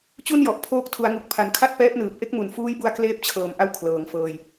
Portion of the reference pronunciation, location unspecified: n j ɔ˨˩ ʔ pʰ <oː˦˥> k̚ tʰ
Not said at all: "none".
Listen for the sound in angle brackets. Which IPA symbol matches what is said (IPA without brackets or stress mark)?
oː˦˥